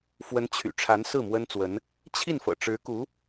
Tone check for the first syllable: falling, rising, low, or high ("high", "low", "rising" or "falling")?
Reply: rising